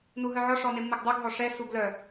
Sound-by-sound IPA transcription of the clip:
nuɦœʕɔ ʂɔnemːeɡdˤœɡ ɦɔʂɛ suɡlœ

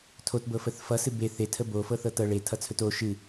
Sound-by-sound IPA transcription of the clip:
tʰotbɤfəθ fʌsɨ be θetʰə bofɤθɤ tɤ ɭetʰʌt͡sʰɵt o ʃɨ

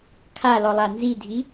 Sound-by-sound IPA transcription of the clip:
kʰalɔlˠa nzidʱi

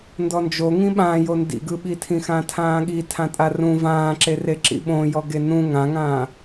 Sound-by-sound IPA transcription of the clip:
ndɔnd͡ʒo ŋĩɓãjo ndḭɡɯɓitʰĩ xãtʰãːɠi tʰãtʼarũ vãːǁere ǁḭɓõjɔ ɡenũ ŋãŋãː

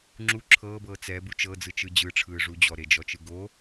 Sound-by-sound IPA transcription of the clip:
ŋ͡ǁu ǁʰɤːbɤː t͡sɛbu t͡ʃɤd͡zɯt͡ʃɯ d͡ʑɯʈ͡ʂʰɯːʐu d͡ʑɔɾed͡ʒɔt͡ʃɯ ɡo

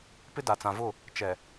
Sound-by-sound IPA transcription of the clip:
pɪ˦da˨t͡sã˨vʊ˦˨ | t͡ʃɛ˨

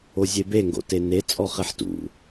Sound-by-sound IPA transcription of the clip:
ozʲebe ŋɡo̰tene t͡sʼɔχeħtṵ

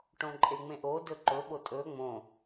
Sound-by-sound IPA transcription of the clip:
ʈõǃʼeŋ͡mẽʔo dɵǃɵ ɓotʼɵ ŋ͡mõ

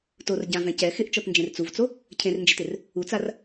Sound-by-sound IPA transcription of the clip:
tor ɟãvɛ̃ cɛ xɪʔt͡ʃɔtnd͡ʒẽr t͡suvt͡so | cʰẽrnd͡ʒetɪr | ut͡sar

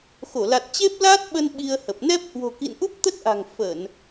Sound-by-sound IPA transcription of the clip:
xo˧˩la˨˩t̚ t͡ɕe˦˥p̚laː˦˥t̚ɓə˧n ɓi˧ə̯hə˨˩p̚ nɛ˦˥p̚hwo̤˨˩kḭ˧˨n ʔu˦˥p̚t̪ə˦˥t̚ʔa̤˨˩ŋ fə˧˩˨n

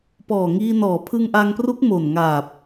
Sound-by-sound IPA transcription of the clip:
pɔː˨˩ŋiː˧ nɔː˩˦pʰɯ˧ŋʔaː˧ŋpru˦˥k̚ mo˨˩nŋaː˨˩p̚

